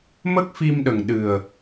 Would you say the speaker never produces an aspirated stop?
yes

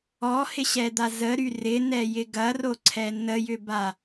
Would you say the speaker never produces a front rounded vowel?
no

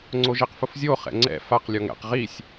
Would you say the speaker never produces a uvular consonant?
no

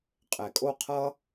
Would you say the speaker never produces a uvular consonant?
no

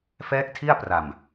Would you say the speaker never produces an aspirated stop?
no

